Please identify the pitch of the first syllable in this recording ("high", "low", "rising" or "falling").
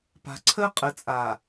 low